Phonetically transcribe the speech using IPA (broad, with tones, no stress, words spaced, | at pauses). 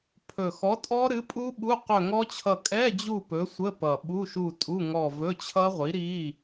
pʰɵ˨˩xɔ˨˥tʼɔ˦˥ ɾɨ˨˥pʼu˦˥ɓu˧˥˧ qɵ˦˨ŋɔ˦˥t͡ɕʰʌ˦˨ kʼɛ˧˥˧d͡ʑu˦˨ pɵ˨˥sʷə˧˥˧ pʌ˨˩ɓu˧˥˧ʃu˦˨ tʼu˧˥˧ŋɔ˦˨ vɵ˧˥˧t͡ɕʰʌ˦˥ʁʷi˨˥ɾi˧˥˧